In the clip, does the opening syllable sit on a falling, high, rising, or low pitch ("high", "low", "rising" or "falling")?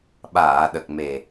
low